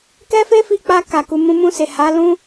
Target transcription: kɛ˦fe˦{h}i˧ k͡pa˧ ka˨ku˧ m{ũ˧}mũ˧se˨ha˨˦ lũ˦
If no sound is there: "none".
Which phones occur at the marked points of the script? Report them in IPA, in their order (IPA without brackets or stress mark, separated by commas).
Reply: f, ũ˧